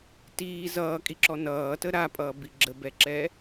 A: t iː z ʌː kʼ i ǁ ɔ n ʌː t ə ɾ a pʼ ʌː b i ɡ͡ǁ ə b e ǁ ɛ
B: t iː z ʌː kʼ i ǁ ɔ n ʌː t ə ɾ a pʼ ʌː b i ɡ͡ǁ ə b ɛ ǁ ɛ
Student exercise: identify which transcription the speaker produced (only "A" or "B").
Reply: B